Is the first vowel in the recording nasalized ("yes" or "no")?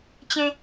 yes